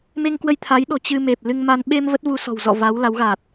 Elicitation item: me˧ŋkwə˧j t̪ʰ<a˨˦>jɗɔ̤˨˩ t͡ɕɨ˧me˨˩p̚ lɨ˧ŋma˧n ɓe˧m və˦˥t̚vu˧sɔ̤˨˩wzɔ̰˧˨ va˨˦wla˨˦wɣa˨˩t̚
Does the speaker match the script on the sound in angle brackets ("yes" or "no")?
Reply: yes